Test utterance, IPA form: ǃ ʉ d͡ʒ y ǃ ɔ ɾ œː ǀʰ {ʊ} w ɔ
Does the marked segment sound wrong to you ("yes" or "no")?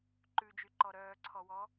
yes